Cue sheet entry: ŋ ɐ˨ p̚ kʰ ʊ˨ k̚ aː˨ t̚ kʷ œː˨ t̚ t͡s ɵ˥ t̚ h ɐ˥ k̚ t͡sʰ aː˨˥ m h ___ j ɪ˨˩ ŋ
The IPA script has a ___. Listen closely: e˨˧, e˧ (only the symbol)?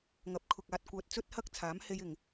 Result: e˧